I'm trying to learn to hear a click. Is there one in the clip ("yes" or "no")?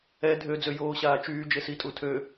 no